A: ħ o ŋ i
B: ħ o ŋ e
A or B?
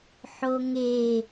B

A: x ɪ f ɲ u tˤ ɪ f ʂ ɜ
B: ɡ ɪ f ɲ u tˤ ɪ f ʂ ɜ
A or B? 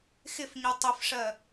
A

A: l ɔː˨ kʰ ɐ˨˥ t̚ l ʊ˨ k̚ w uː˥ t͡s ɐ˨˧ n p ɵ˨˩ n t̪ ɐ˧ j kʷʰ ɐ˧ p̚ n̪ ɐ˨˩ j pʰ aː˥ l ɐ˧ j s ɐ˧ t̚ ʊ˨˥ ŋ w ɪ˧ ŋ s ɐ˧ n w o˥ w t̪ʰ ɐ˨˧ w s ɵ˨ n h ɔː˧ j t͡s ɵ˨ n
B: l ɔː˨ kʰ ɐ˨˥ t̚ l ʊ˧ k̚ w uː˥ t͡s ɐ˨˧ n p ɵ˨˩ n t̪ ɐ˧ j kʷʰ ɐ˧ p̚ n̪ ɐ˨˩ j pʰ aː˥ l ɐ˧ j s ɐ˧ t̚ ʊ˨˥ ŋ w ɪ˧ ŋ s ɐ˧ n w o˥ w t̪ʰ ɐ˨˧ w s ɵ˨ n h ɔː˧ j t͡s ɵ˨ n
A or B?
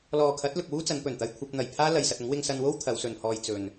A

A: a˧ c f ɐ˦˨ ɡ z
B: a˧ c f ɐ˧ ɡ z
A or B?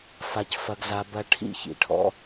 B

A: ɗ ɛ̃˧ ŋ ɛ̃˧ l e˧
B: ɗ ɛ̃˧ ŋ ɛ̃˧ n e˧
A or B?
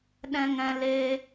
A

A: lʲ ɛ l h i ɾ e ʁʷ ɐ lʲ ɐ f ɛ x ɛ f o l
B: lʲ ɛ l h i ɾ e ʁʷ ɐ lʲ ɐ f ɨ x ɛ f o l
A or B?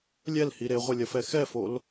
A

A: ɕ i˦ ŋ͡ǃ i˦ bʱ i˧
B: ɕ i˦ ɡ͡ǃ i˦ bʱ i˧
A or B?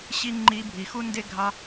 A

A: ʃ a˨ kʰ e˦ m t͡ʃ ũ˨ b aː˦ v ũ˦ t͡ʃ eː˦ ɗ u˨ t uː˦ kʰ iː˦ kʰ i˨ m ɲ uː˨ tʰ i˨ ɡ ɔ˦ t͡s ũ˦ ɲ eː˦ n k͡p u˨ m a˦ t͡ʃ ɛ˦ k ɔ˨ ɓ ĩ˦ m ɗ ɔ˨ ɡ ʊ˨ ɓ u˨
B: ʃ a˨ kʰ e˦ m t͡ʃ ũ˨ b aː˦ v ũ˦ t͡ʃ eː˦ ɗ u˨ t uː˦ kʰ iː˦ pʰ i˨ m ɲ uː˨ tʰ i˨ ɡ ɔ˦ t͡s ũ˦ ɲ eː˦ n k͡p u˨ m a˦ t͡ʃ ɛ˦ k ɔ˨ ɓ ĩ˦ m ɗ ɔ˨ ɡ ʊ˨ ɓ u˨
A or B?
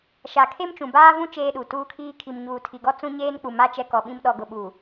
A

